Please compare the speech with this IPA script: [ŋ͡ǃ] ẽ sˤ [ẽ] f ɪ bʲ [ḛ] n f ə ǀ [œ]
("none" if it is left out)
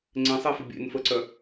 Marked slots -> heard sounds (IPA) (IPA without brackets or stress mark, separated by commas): ŋ͡ǀ, e, ḛ, œ